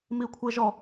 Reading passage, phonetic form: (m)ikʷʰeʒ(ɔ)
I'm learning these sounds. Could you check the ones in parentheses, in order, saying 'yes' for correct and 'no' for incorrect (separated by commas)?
yes, yes